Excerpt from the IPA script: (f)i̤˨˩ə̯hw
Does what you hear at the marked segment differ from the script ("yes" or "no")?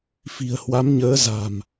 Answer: no